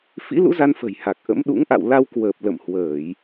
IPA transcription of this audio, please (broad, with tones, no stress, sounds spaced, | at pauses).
f ḭ˧˥ l ṵ˧˥ z a˧ n f ə̤˨˩ j h a˨˩ k̚ ʔ ə̰˧˥ m ɗ ṵ˧˥ ŋ ʔ a̰˧˨ w l a˧ w k w əː˨˩ p̚ l ə̰˧˨ m h w əː˧˩˨ j